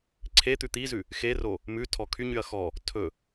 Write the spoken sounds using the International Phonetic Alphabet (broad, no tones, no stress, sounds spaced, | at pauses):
ǀʰ e t̪ ʉ t̪ i z ʉ | x e r o | m ʉ tʰ ɔ kʰ y ɲ y ɐ̯ x ɔ | tʰ ɵ